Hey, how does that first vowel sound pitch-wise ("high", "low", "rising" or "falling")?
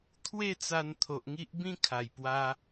falling